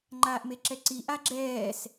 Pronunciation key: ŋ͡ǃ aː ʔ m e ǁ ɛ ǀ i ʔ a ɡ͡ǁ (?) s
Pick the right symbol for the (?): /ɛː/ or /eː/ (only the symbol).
ɛː